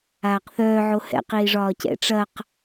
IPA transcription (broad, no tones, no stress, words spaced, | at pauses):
aːqθœː ʕohɛ̰ qiːʐɒːcɛ̰ ʈ͡ʂɐq